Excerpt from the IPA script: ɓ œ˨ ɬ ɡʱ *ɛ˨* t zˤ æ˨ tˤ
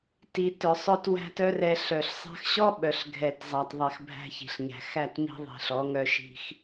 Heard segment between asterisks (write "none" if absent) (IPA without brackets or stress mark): ɛ˨